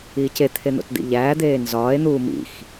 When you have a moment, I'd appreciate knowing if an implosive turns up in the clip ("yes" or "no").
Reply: no